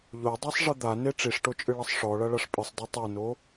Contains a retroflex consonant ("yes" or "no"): yes